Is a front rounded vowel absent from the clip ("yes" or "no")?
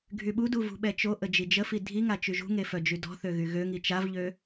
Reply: no